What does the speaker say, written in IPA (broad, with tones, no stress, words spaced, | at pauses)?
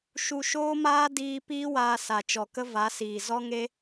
ʃu˧ʃoː˦maː˦ diː˧ piː˦waː˧ sa˨t͡ʃɔ˨kə˦ va˨˦siː˨ zɔ˦ŋe˦